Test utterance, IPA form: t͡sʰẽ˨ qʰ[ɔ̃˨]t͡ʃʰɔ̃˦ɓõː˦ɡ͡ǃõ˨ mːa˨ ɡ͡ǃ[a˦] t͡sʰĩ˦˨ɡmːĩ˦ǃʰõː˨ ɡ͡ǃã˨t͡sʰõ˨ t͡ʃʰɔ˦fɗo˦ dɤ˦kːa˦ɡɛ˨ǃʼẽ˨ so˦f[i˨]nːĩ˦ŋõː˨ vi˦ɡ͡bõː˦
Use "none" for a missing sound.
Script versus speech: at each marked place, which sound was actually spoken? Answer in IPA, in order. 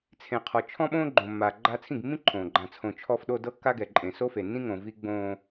ɔ˨, a˦, e˨

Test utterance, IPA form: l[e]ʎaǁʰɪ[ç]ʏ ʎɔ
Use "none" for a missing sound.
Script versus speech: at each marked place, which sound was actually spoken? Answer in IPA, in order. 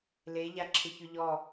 e, ç

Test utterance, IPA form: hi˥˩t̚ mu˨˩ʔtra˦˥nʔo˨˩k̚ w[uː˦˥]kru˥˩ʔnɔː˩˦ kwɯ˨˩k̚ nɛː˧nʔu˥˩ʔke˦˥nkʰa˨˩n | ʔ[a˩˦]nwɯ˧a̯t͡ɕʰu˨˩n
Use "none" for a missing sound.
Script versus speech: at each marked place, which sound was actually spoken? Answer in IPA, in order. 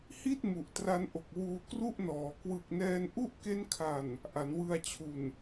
uː˧, a˩˦

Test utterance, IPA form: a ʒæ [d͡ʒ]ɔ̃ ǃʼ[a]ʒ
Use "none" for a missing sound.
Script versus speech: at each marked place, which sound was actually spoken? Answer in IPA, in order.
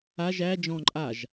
d͡ʒ, a

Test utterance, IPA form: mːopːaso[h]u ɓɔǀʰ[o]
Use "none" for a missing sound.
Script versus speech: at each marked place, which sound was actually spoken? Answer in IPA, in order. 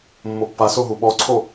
ɦ, o

